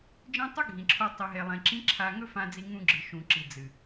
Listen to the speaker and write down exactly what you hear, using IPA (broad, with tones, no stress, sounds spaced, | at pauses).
d͡ʒ ẽ˦ tˤ ɨ˦ ɡʱ ĩ˨ ǁʰ o˧ tˤ i˧ ɦ e˧ lˠ ẽ˧ ǁ ĩ˦ ǁʰ a˧ ŋ ɵ˦ f ã˧ d͡z i˧ ŋ ũ˧ ɡ͡ǁ ɨ˨ ʃ ũ˨ ǁ i˨ d͡z ɨ˨